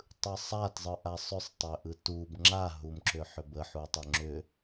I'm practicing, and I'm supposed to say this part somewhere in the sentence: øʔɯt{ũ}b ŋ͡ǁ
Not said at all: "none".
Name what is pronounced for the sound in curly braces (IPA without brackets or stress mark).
u